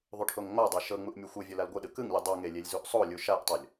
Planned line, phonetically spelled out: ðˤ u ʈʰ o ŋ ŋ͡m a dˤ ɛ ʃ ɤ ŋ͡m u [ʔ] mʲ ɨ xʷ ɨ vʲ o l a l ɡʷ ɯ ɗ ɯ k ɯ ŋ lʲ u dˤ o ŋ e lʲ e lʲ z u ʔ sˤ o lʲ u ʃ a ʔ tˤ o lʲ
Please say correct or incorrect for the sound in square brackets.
correct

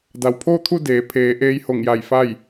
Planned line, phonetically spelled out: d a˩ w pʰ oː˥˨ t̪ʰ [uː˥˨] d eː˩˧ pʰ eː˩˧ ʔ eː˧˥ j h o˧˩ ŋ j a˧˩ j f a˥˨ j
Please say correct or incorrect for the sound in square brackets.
incorrect: u˥˨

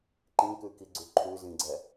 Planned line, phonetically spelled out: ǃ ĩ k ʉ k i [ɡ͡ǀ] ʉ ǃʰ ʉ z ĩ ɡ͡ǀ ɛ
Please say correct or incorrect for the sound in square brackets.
correct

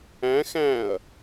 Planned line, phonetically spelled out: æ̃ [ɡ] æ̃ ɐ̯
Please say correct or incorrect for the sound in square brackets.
incorrect: x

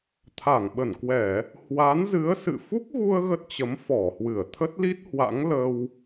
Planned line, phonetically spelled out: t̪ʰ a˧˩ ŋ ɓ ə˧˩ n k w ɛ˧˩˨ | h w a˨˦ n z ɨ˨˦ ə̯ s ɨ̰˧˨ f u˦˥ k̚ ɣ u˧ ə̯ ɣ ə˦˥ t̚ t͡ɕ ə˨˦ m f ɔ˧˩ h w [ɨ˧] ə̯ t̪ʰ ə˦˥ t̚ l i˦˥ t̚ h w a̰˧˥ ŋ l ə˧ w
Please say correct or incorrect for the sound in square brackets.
incorrect: ɨ˧˩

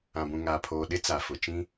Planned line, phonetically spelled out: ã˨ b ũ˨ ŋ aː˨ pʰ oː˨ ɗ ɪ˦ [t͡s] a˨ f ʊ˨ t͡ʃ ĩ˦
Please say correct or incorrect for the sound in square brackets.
correct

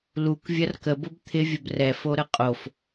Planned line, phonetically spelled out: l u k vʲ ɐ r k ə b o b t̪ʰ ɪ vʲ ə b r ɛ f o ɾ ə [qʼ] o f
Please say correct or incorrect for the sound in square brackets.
correct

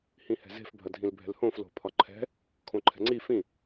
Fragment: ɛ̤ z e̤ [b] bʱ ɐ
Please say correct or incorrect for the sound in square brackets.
incorrect: f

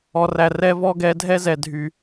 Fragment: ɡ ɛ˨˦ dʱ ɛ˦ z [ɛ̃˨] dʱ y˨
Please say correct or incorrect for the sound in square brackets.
incorrect: ɛ˨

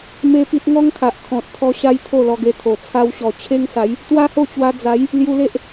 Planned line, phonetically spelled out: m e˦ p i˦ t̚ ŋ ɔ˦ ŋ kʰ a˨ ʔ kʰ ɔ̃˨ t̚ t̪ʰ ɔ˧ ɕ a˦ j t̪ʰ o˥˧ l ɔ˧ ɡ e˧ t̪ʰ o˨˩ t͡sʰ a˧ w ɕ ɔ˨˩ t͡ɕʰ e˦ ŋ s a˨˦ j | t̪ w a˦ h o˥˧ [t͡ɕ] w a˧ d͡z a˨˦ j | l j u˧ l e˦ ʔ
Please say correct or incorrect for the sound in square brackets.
correct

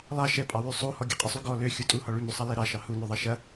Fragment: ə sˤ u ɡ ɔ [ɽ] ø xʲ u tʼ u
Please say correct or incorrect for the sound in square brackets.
incorrect: l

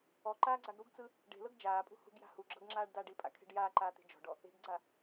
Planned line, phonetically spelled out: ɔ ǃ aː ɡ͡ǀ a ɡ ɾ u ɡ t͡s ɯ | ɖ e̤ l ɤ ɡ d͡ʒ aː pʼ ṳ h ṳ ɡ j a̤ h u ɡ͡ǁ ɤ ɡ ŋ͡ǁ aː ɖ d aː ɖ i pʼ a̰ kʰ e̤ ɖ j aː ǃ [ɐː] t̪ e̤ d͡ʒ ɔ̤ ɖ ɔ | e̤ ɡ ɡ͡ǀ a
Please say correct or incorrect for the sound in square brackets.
incorrect: aː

